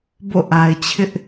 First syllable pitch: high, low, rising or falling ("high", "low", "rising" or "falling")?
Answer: falling